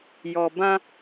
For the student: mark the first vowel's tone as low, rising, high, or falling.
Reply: low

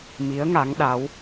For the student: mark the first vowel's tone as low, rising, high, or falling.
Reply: rising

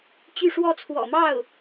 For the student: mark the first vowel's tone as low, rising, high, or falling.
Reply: falling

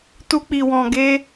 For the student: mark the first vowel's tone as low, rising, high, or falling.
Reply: high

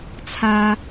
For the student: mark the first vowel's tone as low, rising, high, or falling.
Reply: high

